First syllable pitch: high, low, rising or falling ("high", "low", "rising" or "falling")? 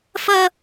high